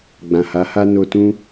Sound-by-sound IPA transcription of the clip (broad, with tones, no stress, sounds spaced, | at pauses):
ɡ͡b ã˨ h a˨˦ h a˦ n o˧ t ũ˦